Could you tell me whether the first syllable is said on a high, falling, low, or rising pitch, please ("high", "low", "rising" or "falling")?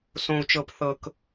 low